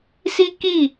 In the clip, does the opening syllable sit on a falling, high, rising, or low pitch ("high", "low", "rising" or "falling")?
high